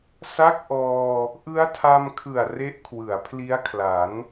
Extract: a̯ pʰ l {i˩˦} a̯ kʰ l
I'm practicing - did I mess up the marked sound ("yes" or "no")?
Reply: yes